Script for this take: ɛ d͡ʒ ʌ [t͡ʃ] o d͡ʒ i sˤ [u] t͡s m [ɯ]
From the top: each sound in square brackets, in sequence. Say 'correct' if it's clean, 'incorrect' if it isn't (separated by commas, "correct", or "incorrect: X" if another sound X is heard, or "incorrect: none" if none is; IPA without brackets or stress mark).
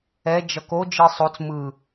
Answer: incorrect: k, incorrect: o, correct